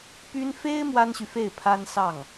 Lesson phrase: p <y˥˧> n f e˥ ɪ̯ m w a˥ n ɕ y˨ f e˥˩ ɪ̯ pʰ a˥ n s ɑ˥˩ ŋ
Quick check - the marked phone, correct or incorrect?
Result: incorrect